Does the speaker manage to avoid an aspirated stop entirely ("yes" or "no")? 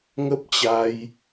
yes